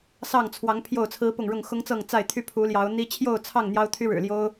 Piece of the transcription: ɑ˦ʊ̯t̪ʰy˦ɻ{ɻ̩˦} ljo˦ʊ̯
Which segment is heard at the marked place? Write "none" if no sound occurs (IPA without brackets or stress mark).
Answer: ɻ̩˨˩